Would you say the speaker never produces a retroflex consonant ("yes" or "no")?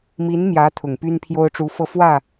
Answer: no